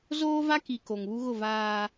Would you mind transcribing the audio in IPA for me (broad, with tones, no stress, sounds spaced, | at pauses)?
z oː˦ v a˦ k i˨ k o˨ ŋ β u˦ ɣ ʊ˦˨ v aː˦